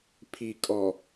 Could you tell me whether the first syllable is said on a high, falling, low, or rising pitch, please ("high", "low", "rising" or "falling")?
low